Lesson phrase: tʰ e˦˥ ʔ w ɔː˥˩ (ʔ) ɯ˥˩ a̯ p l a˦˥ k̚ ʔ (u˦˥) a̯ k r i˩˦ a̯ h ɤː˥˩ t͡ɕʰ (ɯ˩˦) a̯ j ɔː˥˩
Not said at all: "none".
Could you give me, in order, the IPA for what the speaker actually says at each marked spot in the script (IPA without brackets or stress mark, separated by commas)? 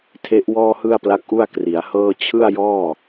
h, u˥˩, ɯ˥˩